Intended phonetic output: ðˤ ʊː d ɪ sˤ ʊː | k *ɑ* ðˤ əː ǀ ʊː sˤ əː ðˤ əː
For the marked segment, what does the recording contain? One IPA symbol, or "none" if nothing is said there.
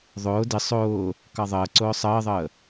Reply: ɑ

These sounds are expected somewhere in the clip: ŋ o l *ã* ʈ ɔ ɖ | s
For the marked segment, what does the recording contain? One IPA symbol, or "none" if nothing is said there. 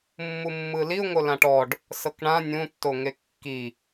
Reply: ã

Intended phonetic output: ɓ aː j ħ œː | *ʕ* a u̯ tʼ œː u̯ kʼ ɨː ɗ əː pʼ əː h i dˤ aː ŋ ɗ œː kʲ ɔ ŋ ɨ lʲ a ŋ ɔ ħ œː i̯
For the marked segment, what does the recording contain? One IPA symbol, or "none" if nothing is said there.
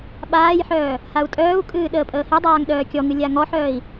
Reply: h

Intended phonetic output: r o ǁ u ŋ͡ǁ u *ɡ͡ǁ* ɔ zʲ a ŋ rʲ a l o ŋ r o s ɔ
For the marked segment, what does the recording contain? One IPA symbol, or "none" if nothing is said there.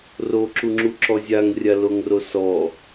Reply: ǁ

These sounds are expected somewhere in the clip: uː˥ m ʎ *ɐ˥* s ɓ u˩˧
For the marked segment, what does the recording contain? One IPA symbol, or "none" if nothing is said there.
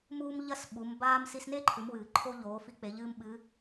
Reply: ɐ˥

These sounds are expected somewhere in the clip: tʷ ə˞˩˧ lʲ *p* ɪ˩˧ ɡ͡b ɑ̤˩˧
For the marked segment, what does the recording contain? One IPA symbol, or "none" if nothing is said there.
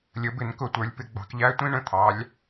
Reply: p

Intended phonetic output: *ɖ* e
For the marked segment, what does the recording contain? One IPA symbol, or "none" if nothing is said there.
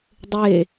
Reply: dˤ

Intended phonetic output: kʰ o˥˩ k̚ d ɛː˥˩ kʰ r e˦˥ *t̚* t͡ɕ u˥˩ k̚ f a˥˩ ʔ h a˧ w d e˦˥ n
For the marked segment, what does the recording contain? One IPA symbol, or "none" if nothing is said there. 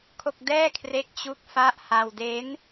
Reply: k̚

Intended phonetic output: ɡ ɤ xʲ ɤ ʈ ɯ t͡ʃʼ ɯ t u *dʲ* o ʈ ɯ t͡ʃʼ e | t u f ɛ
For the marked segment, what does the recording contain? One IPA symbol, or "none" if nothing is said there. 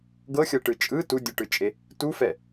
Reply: dʲ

